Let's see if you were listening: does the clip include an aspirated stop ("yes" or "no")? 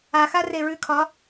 yes